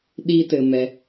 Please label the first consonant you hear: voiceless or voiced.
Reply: voiced